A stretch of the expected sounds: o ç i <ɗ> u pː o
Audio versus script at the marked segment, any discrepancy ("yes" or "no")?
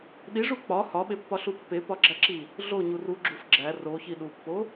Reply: no